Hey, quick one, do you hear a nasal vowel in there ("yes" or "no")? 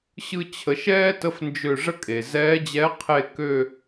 no